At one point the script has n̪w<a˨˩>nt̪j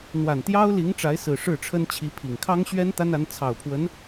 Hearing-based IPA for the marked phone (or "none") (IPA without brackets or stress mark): a˨˩